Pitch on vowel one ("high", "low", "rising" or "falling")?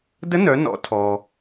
rising